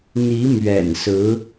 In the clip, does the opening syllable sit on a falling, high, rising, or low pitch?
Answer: rising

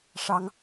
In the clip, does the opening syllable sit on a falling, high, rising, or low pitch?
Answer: high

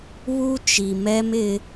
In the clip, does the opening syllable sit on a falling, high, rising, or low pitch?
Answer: high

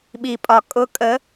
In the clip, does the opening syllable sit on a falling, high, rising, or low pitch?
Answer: low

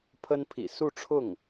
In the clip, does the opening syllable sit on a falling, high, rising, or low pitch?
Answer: high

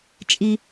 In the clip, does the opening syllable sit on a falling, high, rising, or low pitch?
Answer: high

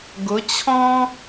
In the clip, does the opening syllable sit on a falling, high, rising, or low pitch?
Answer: rising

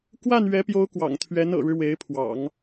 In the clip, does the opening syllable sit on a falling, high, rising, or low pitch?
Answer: falling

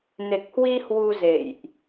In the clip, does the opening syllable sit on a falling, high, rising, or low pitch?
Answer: low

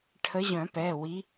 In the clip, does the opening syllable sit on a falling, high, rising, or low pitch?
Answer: rising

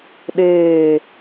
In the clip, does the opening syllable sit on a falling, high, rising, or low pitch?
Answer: falling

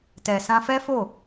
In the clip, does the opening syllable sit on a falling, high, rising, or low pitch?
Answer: low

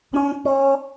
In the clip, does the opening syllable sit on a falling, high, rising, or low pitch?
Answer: high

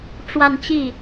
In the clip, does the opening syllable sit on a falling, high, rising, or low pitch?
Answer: falling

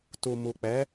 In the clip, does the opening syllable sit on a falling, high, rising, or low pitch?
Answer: low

